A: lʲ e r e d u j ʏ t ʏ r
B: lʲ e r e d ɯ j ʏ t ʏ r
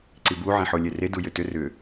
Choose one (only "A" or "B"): A